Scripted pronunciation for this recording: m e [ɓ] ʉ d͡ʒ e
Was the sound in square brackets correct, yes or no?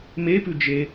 no